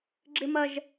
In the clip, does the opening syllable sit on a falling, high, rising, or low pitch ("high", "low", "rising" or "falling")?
high